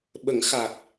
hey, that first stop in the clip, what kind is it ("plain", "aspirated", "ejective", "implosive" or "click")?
implosive